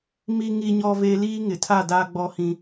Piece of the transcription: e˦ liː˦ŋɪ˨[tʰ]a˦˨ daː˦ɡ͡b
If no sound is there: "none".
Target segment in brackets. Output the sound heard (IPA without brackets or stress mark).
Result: tʰ